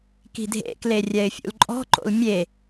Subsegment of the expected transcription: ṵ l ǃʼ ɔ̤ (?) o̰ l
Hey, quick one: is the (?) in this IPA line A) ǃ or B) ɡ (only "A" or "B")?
A